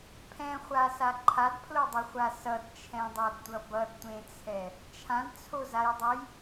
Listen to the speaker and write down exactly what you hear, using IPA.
pʰ ɛ̃ χʷ a s a ǃʰ a d pʰ l o dˤ ʌ χʷ a s ʌ d t͡ʃʰ ɛ̃ dˤ a d tʷ ʌ b ʌ d tʷ ẽ t͡sʰ ɛ | t͡ʃʰ ã d t͡sʰ o z a j dˤ o j

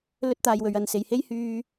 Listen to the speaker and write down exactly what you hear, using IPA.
l ɵ˥ t̚ t̪ aː˧ j w ɵ˨˧ ɥ ɐ˨˧ n s e˨ j h e˥ j h yː˧

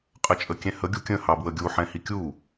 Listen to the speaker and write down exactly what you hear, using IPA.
qʼ ə t͡ʃʼ ə kʲ ɛ̃ h ə ɡʲ u kʲ ə̃ h ɑ b w ə ɡʲ u ħ ɛ̃ h i kʲ u

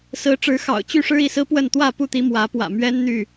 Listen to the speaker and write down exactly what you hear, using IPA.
s ɹ̩˨˦ ʈ͡ʂ ɻ̩˨˦ x ɑ̰˨˩ ʊ̯ t͡ɕ y˥˨ ʂ ɻ̩˦ i˥˨ s ɹ̩˦ p w ə˥˨ n t̪ w ä˥˨ p u˥˨ t̪ i˨˦ m w ä˨˦ p w ä̰˨˩ m ɥ ɛ˦ n n̪ y˥˨

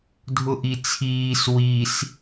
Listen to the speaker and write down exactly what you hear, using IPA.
dʱ ʊ ʔ i t͡sʰ iː s w i s

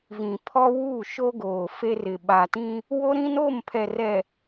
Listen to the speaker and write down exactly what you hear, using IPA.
v ĩ˨ pʰ ɔ˦ w u˦˨ ʃ o˦ ɡ oː˨ f e˦ r ɪ˨ ɓ a˨ t ĩ˦ | w o˦ ɾ ĩ˦ n o˦˨ m pʰ ɛ˨ r ɛ˨

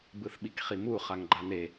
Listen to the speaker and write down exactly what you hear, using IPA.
b ɯ θ ɓ i k χ i m u χ a ŋ ɡ͡ǃ a n e

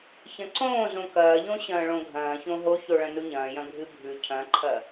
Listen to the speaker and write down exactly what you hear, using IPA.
ç ɐ̃ ǀ õː z õ k ɐː ʎ õ ɕ ɐ̃ː ɭ õ ɡʱ ɐ̃ː ç õ ɦ o ç o ɭ ɐ̃ n u ɲ ɐ̃ː j ɐ̃ ɡʱ ɨ bʱ ʉ cʰ ɐ̃ ǃʰ ɐ

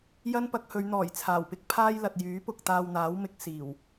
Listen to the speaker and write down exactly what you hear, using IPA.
j ɐ˥ n p ɐ˧ k̚ h ɵ˨˧ ɥ n̪ ɔː˨˩ j t͡sʰ aː˨˩ w p ɪ˥ k̚ pʰ aː˥ j l ɐ˨ t̚ j yː˨˥ p ʊ˨ k̚ t̪ aː˧ w n̪ aː˨˥ w m ɪ˨˥ k̚ s iː˨˩ w

